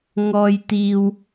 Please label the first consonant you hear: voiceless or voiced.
voiced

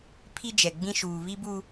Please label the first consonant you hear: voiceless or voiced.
voiceless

